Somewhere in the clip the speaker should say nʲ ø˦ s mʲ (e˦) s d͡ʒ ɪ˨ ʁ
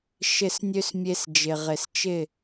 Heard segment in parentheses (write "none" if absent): e˧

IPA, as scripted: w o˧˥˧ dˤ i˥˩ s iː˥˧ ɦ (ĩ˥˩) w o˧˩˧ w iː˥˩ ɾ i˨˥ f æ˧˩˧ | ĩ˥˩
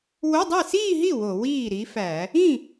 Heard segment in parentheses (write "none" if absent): i˥˩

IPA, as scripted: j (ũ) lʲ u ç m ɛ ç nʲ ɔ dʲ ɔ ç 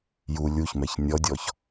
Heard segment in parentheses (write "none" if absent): u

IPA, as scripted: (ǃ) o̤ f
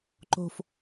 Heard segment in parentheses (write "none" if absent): ǃ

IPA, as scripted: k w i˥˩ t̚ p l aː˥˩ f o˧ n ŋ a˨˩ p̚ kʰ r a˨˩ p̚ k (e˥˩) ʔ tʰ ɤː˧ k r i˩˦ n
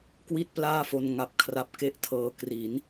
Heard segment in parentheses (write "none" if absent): e˥˩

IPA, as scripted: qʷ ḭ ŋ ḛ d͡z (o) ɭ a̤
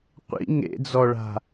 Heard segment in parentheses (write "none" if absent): ɔ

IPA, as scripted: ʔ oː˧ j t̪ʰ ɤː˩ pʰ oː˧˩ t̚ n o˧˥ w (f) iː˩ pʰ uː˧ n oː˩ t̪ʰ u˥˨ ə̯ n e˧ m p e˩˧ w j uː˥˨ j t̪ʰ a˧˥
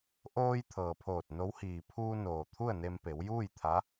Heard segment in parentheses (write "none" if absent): h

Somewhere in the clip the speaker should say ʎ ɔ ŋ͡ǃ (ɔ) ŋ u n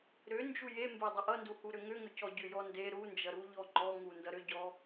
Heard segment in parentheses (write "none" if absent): ɔ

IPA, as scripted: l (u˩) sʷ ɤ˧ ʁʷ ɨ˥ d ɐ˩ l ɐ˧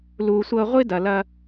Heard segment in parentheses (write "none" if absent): u˩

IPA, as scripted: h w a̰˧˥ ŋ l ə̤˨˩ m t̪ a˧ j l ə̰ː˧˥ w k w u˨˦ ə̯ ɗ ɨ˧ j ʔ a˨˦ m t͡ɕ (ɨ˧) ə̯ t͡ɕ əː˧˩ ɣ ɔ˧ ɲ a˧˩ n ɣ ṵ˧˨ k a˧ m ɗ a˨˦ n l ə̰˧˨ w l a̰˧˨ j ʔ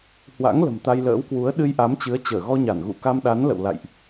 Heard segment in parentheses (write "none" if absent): ɨ˨˦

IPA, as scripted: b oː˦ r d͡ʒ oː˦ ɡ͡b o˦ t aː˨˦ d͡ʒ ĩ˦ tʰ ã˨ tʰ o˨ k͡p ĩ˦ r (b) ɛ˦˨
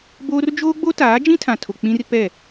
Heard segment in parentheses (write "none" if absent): p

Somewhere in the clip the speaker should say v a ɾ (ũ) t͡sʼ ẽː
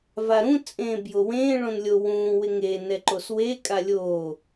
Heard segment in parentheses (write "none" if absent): ũ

